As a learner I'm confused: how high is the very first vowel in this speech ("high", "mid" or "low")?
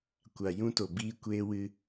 low